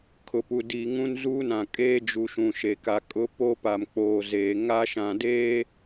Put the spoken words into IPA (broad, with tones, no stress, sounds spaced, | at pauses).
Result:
kʰ ʊ˨ p u˨ d i˨ ŋ ũ˦ n z uː˦ n ã˨ kʼ eː˦ d͡ʒ u˨ ʃ ũ˨ ʃ e˨ k a˨ kʼ ʊ˦ p o˦ p a˨ m k͡p oː˨ z eː˨ ŋ a˦ ʃ ã˨ d eː˦